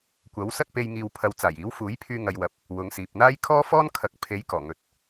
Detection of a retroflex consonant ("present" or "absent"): absent